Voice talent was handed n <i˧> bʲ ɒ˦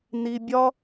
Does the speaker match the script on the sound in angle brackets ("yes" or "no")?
yes